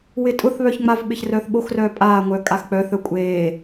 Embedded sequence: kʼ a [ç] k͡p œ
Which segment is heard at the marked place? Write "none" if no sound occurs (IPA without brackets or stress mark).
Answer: x